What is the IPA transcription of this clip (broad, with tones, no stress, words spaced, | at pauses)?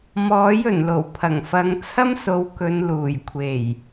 mɔː˨˥jɵ˨˩nlo˨˩w pʰɐ˨˩ŋfɐ˨˧ŋ t͡sʰɐ˥mso˨˧w kɵ˨˧nluː˨˩jkʷʰe˨˩j